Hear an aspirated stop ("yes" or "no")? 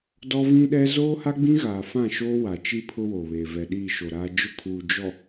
yes